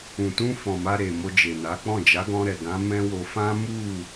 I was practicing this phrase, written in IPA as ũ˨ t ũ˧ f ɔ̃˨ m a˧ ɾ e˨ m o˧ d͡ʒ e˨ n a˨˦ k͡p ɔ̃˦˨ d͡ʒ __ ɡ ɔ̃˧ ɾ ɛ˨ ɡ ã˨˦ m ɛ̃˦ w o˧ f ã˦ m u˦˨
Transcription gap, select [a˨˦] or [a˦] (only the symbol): a˨˦